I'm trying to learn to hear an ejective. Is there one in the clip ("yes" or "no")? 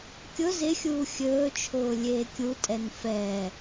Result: yes